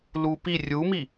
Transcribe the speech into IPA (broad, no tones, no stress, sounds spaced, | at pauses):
l u p i rʲ u m i